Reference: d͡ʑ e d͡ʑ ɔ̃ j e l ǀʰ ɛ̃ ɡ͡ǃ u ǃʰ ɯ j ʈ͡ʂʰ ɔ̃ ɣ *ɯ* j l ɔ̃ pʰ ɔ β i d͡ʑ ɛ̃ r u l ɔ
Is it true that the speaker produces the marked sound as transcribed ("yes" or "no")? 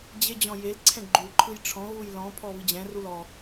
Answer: no